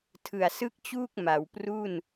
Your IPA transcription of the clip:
tʰɯ˨˩a̯sɯ˥˩k̚t͡ɕuː˥˩k̚ ma˩˦wpru˥˩n

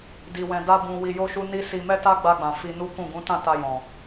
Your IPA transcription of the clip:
di˧wɛ̃˧ da˦bũ˧ wi˧jo˦ʃu˦ ni˦ si˧ mɛ˦ta˦ɡ͡ba˧ɡ͡bã˨ fi˧nu˦kũ˦˨ ɡũ˨˦tã˦˨ ta˧jɔ̃˨

